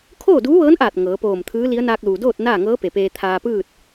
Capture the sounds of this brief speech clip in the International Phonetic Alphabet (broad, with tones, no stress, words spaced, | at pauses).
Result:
kʰoː˥˨duː˧˥ʋɤː˧˥nʔaː˧˩t̚ ŋɤː˩˧poː˧˩mt̪ʰɯː˧˥li˧˥ə̯ naː˧k̚luː˩doː˥˨t̚ naː˥˨ŋɤː˧˥pe˩ peː˧t̪ʰaː˧pɯː˥˨t̚